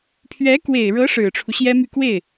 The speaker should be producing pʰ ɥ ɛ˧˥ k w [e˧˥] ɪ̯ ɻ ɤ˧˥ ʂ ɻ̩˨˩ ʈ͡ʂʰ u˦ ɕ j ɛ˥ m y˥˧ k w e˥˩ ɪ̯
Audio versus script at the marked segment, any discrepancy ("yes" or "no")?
yes